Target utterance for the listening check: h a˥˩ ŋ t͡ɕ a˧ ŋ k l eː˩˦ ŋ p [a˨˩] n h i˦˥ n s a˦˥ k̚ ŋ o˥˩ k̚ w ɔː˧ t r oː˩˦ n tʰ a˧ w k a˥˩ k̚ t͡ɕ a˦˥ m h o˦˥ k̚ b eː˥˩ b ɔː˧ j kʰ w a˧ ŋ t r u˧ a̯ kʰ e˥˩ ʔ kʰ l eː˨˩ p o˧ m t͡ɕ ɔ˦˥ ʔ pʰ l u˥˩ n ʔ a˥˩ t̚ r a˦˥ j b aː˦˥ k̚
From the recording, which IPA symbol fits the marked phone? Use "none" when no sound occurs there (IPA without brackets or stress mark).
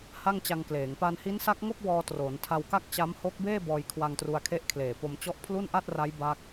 a˧